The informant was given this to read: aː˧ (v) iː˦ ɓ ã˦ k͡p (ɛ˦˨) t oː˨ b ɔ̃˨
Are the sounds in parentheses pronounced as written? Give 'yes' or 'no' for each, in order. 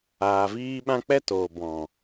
yes, no

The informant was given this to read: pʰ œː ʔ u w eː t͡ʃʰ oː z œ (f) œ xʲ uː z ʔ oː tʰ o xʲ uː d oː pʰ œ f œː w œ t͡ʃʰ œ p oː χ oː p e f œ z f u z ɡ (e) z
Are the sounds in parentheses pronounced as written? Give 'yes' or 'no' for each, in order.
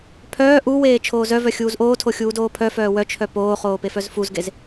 no, yes

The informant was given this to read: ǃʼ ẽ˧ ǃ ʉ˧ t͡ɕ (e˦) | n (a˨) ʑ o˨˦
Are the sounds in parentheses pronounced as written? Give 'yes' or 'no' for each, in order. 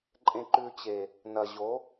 no, no

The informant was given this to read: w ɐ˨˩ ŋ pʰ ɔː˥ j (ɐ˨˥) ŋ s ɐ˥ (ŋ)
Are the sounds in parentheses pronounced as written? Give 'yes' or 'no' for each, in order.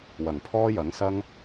yes, yes

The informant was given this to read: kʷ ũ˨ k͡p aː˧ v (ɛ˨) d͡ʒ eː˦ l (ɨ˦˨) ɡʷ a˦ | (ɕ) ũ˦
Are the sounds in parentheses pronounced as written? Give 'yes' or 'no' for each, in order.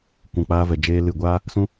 yes, yes, no

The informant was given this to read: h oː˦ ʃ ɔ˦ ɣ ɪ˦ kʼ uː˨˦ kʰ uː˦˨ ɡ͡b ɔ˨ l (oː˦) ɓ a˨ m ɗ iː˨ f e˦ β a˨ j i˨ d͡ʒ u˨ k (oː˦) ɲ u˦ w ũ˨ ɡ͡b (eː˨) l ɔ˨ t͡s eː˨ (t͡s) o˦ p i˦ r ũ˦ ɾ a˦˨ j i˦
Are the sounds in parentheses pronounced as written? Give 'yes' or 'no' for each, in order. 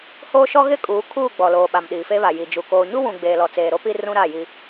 no, no, yes, no

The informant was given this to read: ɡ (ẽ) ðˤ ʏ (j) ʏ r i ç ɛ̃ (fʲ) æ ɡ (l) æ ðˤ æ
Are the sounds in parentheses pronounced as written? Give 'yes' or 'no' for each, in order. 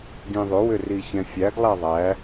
no, no, yes, no

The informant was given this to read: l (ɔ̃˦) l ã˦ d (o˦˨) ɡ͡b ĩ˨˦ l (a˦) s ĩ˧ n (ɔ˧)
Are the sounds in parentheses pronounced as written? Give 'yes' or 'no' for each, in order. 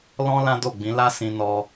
yes, yes, yes, yes

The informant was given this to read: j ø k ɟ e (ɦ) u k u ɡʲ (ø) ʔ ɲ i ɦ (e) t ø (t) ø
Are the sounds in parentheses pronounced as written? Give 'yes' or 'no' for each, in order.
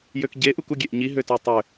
no, no, no, no

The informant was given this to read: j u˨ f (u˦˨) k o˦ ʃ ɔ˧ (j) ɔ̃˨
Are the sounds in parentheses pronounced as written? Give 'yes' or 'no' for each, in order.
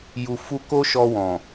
no, no

